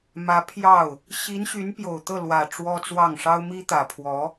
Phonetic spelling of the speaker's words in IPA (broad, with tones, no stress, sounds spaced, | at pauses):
m ä˧˥ pʰ j ɑ˥˩ ʊ̯ | ɕ i˧˥ n ɕ y˧˥ n p j o˨˩ ʊ̯ t̪ ɤ˥˩ l w ä˨˩ ʈ͡ʂ w ɔ˥ t͡s w ɑ˥˩ ŋ ʂ ɑ˥ ʊ̯ m i˥ t̪ ä˨˩ pʰ w ɔ˧˥